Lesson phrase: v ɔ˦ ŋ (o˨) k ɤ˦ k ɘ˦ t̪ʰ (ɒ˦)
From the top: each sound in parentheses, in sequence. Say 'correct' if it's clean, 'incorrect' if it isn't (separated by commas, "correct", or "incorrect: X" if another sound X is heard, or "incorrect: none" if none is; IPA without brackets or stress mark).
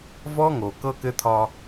correct, correct